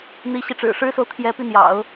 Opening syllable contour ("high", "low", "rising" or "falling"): rising